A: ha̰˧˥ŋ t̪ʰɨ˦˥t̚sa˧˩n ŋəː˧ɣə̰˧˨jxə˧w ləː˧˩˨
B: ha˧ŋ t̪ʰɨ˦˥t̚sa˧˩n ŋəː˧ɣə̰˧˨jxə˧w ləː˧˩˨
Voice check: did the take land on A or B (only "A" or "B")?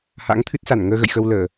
A